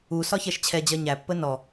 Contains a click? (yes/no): no